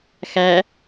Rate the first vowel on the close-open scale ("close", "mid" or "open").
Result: open